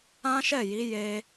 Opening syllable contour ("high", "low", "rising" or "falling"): high